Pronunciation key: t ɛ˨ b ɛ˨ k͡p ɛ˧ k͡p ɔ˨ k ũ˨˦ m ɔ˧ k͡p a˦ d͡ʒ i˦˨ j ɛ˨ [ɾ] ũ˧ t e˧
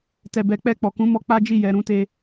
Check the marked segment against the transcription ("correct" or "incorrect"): correct